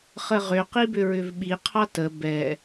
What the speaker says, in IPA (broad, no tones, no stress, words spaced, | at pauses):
χəʁʏ qibʏɹʏvɓi qʰɑtə bɛ